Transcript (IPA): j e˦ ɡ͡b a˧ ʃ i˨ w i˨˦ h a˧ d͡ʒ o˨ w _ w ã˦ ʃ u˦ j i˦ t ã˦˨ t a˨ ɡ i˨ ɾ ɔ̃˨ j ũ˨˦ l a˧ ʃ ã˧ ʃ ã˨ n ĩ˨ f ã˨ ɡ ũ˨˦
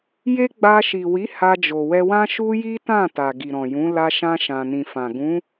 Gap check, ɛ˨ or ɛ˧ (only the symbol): ɛ˧